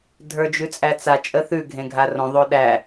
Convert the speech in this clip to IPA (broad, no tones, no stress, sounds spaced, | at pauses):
dʱ ə˞ d͡ʒ ʉ t͡sʼ æ t͡s a t͡ʃʼ ə θ ʉ ɡʱ ẽ ɡʱ a r õ ðˤ o ɗ æ